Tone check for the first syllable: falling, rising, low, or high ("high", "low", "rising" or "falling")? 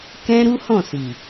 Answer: high